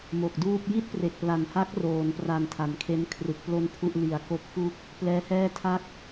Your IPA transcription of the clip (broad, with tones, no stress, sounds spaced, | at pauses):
m o˨˩ k̚ d uː˥˩ p̚ j i˥˩ t̚ p r e˨˩ k̚ p l a˨˩ n h a˦˥ k̚ r oː˩˦ n p r a˨˩ n tʰ a˨˩ n kʰ e˦˥ n kʰ r ɯ˨˩ k̚ p l o˥˩ n pʰ u˥˩ ʔ l i˨˩ a̯ k o˦˥ k̚ f u˥˩ k̚ | p l ɛː˦˥ h ɛː˥˩ tʰ a˥˩ k̚